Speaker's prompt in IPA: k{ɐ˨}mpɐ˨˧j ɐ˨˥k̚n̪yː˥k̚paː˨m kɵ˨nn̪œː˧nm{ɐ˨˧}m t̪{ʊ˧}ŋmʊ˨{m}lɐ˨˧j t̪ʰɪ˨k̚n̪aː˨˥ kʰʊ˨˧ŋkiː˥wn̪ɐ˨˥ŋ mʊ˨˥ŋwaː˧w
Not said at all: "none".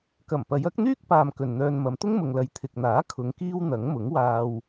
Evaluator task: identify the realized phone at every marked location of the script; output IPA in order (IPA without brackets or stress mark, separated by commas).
ɐ˨˩, ɐ˨˧, ʊ˥, ŋ